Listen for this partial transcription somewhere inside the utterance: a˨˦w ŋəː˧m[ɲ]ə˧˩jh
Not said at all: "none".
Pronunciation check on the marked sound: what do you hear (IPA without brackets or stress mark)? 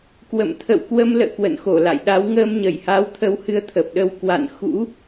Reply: ɲ